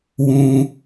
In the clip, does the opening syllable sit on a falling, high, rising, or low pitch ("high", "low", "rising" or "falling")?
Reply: high